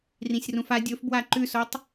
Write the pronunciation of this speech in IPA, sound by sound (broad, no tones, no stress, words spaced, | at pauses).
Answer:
rĩsʲrũfa dʲɵfbwa ǃʉsotˤ